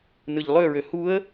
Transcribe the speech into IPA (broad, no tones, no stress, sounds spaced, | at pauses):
n ɯ ʎ lˠ ø ɹ ø h u ə̯